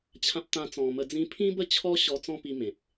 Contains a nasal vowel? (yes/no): yes